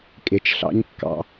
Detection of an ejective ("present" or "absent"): present